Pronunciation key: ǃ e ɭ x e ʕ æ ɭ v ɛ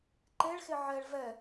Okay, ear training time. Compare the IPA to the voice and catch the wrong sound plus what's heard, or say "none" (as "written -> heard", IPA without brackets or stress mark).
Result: æ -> ɛ